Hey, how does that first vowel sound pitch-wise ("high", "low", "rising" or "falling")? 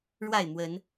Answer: falling